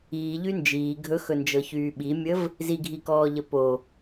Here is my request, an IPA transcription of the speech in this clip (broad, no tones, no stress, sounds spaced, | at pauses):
iː ʎ y n d͡ʒ iː ɡʱ ɵ x ɵ n d͡ʒ ɤ ç yː ɓ i mʲ ə v | z i ɡʱ i k ɔː ʎ ə p o